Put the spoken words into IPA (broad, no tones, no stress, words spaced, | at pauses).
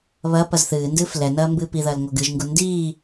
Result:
βɐ pɐzθɨːndɨːf lɛnɐː mbɨːpiðɐːl ŋoɡɨʒŋɡu ndiː